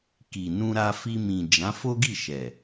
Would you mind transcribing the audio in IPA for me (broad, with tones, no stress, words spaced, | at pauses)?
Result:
ki˨nũ˧ɾa˧ fi˧mĩ˨ d͡ʒã˨˦fo˦ɡi˦˨ ʃɛ˨